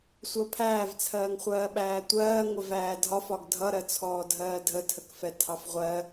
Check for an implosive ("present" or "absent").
present